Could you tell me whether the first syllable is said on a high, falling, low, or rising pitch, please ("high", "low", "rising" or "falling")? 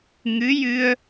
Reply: rising